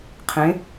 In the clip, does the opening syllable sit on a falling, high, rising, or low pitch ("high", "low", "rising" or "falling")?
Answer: rising